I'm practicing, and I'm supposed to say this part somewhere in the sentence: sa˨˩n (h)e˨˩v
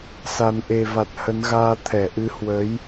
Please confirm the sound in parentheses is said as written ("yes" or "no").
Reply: no